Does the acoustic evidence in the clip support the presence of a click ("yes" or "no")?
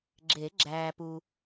yes